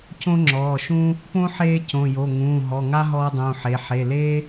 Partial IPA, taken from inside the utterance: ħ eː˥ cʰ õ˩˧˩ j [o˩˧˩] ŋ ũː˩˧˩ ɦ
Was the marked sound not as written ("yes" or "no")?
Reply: no